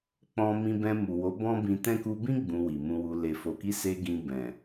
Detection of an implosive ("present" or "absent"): absent